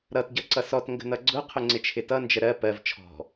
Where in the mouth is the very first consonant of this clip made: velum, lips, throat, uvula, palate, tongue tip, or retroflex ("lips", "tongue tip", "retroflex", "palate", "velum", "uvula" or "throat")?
tongue tip